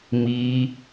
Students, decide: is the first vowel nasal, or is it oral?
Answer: oral